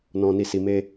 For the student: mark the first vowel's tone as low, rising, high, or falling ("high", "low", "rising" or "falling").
low